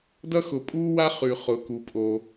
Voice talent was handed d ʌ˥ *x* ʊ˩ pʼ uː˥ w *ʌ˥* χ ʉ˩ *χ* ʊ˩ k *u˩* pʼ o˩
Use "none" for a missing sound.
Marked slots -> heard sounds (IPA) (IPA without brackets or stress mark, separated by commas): x, a˥, χ, u˩